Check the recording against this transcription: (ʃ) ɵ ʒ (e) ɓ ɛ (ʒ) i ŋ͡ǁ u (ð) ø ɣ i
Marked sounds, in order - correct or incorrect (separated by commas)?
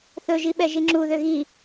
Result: incorrect, incorrect, correct, correct